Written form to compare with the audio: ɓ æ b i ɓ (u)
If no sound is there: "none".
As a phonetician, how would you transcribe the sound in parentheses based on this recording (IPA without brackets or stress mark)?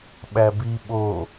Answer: o